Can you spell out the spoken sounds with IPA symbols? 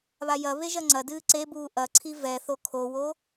β a j ɐ β e ʒ ɐ ŋ͡ǀ ɐ d ɨː ǀ e b uː ʔ ɐ ǀʰ i v ɛ θ o kʰ o w o

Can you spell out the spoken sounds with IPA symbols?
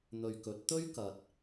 n̪ ɵ˨ ɥ k ɵ˨˥ t̚ t̪ ɵ˥ ɥ k ɐ˨ t̚

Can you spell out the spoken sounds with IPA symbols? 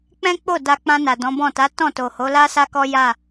k͡p ɛ̃˦ k͡p o˦˨ d a˧ k͡p ã˧ n a˨ d ɔ̃˨˦ b ɔ̃˦˨ t a˨˦ t ɔ̃˦˨ t o˨ h o˨˦ l a˦ s a˦ k ɔ˦ j a˦˨

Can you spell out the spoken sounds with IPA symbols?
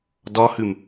d ɒ h ʉ m

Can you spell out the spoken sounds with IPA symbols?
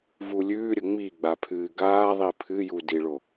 v u lʲ ʉː ɾʲ ə ŋ͡m i ɡ͡b a pʰ ɨː ɡ aː ðˤ i pʰ ɨ j u d i ɭ o

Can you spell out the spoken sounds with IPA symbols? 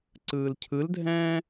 ǀ ɯː l cʰ ɯ l dʱ ɛ̃ː

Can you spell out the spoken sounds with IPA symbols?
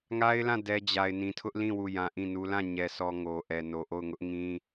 ŋ a˦ ɪ̯ l ã˦˨ d ɛ˦ d͡ʑ a˨ ɪ̯ n ĩ˨ tʰ ʊ˦ ʔ l ĩ˦˨ w u˦˨ j ã˦ ʔ ĩ˦˨ n u˦ l ã˦˨ ɲ ɛ˨ s ɔ˨ ŋ o˨ ʔ ɛ˨ n o˨ ʔ o˦˨ ʊ̯ ŋ ʊ˦ ʔ ŋ ĩ˦

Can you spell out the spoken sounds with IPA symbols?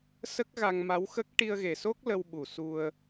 s ə˦˥ k̚ ɣ a˧ ŋ m a˧˥ w x ə˦˥ k̚ ʈ i˧ ə̯ ɣ e˨˩ s o˦˥ k̚ l ə˧ w ɓ u˨˩ s u˧ ə̯

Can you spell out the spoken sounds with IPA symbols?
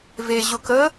v e ʑ ʊ k ə

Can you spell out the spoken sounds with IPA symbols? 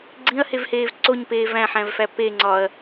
ɡ͡ǀ ĩ ɐ̯ h e v h eː v ǀ o ɲ p eː v æ̃ ħ æ̃ v f æ p e ŋ͡ǀ ɒ ɐ̯

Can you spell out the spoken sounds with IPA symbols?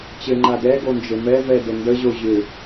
t͡ɕ ɘ ŋ͡ǃ a d ɛ ɡ o n d͡ʒ ɘ m ɛ v ɛ d ɘ n d ə ʑ o ʑ ʏ

